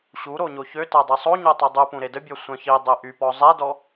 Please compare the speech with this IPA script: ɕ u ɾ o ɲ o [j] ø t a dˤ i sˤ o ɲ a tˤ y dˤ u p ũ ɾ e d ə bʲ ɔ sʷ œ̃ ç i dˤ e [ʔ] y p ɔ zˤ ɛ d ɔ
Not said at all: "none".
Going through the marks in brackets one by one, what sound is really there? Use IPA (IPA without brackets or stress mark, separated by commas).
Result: ç, ʔ